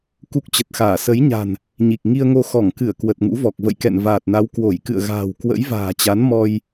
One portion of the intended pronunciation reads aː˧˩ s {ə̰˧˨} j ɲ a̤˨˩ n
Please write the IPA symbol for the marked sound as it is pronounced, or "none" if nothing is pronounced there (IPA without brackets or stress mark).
ə˨˦